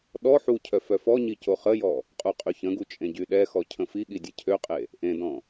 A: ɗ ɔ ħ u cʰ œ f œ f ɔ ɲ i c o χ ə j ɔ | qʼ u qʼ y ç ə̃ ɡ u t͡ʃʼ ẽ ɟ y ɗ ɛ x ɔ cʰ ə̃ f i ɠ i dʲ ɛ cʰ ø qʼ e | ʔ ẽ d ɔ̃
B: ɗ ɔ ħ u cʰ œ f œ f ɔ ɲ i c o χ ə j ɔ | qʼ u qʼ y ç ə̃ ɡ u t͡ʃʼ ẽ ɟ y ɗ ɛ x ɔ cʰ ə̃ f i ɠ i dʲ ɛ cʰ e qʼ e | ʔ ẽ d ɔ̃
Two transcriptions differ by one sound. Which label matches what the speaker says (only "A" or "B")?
A